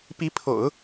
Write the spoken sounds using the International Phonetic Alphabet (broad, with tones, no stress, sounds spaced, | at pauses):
p i˧˥ pʰ o̰˨˩˦ ʊ̯